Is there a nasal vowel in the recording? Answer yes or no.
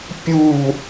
no